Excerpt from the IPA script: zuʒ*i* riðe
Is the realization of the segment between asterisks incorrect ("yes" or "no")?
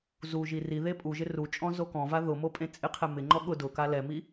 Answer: no